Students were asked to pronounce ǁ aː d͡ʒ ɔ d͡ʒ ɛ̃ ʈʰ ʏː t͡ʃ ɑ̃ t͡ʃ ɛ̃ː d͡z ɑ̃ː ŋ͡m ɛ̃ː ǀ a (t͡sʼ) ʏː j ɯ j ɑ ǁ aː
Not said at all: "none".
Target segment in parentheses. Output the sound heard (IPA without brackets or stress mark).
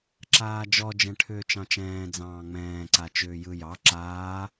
t͡ʃ